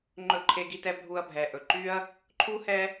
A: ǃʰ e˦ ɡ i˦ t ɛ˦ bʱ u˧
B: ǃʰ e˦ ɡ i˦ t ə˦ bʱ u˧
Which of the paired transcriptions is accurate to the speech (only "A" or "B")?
A